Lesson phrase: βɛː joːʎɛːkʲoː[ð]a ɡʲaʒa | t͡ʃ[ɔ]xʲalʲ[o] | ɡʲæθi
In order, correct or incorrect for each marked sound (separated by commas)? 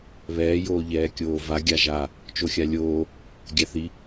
incorrect, incorrect, incorrect